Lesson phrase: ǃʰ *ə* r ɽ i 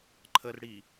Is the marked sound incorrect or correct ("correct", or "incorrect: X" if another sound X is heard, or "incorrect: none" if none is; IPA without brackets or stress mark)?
correct